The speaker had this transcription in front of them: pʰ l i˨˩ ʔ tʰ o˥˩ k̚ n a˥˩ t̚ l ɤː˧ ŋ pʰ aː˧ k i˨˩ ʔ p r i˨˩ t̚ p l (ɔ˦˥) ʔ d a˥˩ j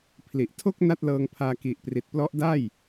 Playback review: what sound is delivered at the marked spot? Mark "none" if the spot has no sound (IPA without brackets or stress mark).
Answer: ɔ˦˥